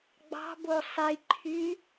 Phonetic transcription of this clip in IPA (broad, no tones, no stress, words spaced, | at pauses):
ɡ͡bɑ̤bo sˤiǃʰy